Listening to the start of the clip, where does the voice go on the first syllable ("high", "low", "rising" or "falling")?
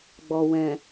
low